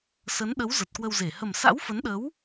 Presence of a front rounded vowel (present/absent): absent